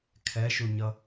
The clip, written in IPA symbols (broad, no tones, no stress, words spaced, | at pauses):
kʰɛʃuɲʌ